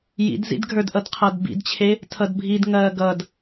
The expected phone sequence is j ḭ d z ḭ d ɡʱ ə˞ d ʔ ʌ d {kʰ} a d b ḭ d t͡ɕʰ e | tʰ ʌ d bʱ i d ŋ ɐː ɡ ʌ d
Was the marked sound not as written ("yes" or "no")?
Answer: yes